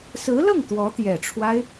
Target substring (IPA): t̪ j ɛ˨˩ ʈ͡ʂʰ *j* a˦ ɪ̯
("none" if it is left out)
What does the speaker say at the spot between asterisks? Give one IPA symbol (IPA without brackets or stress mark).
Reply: w